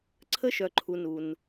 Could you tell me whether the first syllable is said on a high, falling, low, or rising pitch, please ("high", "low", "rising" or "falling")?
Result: high